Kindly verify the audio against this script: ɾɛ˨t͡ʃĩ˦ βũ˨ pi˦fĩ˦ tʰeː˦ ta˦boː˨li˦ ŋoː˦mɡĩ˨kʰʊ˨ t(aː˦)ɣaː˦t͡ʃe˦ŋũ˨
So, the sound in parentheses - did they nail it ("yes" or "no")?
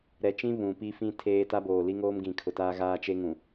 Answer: yes